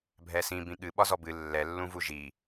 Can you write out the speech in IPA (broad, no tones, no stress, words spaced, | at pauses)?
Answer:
bʱɛsĩ bĩɠɨ ɓɒzɔbɨ lːɛ lːũvuʒi